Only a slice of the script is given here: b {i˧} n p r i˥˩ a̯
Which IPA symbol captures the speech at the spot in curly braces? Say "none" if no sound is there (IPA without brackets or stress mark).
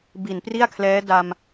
i˨˩